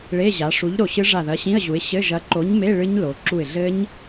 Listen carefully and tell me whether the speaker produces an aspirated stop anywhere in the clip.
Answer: no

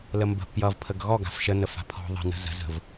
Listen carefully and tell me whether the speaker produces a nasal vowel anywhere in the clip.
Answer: no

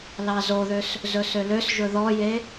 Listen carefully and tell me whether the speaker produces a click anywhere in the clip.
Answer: no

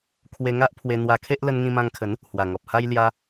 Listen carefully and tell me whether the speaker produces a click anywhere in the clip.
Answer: no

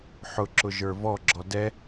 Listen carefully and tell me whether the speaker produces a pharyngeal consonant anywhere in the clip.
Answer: yes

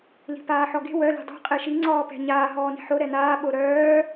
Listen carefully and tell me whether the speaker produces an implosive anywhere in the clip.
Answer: yes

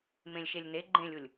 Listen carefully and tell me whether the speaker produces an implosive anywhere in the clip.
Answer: no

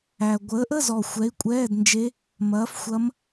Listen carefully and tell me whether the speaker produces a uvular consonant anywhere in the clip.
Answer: no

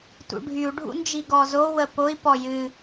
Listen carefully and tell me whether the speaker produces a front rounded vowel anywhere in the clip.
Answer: yes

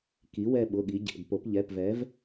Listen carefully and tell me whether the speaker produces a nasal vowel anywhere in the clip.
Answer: no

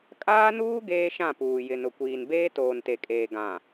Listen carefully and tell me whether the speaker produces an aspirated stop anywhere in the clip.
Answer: no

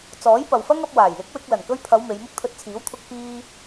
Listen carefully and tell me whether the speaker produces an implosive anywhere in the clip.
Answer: no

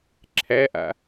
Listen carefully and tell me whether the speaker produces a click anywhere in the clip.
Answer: yes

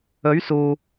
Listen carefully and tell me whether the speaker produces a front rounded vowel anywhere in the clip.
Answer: no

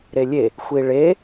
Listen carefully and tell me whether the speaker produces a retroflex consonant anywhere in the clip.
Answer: yes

